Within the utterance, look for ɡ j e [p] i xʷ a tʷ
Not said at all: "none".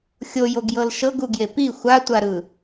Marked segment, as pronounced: p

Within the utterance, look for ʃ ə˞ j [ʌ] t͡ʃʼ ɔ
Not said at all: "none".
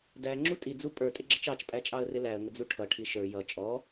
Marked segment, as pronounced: ʌ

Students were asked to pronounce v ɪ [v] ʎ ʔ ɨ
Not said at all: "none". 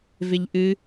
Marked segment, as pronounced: none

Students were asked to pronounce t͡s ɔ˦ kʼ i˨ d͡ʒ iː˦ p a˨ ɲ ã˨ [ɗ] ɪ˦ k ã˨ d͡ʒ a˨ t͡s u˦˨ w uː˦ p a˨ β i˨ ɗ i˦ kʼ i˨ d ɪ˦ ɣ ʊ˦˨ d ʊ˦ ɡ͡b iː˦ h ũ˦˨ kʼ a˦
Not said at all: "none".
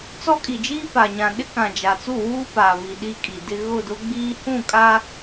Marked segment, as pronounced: ɗ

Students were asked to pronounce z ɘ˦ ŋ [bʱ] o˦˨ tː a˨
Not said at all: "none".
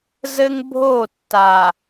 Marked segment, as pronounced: bʱ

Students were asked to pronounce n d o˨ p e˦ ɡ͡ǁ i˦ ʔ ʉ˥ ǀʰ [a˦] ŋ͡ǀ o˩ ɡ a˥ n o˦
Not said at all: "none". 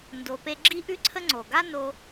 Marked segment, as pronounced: ə˦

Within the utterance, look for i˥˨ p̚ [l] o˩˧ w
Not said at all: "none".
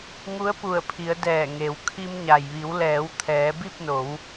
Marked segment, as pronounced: n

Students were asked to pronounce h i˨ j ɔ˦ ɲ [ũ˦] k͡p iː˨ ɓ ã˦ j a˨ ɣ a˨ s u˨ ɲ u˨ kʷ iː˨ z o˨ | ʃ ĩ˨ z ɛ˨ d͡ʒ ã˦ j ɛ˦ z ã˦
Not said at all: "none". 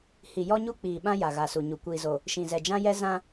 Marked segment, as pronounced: u˦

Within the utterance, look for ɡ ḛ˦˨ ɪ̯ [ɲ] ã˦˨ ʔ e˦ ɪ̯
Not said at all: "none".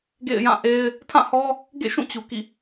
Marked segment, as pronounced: j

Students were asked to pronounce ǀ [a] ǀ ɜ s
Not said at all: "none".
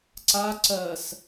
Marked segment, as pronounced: a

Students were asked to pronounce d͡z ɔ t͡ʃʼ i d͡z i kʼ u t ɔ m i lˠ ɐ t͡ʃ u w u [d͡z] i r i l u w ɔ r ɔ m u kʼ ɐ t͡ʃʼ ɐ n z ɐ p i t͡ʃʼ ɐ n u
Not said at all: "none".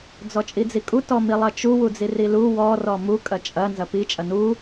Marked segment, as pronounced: d͡z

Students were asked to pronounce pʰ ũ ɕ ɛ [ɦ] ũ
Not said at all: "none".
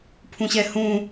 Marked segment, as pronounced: h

